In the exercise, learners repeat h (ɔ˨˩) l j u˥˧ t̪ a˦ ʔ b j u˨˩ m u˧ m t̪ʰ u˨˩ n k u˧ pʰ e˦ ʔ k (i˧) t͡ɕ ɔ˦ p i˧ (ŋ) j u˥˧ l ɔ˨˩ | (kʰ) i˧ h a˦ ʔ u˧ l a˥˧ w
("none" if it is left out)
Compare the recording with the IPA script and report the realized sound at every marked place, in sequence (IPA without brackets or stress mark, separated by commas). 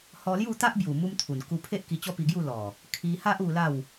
ɔ˧, i˧, ɡ, kʰ